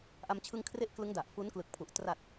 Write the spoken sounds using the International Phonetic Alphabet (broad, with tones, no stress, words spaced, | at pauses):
ʔa˧mt͡ɕʰɯ˧ŋkʰre˦˥ʔ klɯ˦˥ŋ da˨˩ʔfu˦˥nklɯ˨˩k̚pʰu˨˩ʔ tra˨˩t̚